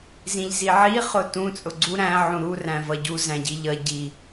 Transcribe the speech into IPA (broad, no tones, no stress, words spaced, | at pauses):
zĩʎziʕi χʊtũ t͡sʼʊɡ͡ǀu ɾæ̃ ʕũɾu ræ̃vʌɟu zæ̃ɟiʎʌ ɟi